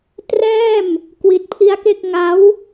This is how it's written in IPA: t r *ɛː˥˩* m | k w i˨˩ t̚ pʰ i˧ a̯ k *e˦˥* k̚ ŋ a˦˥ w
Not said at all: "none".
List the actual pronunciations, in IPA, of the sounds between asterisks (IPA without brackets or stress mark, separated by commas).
ɛː˥˩, e˥˩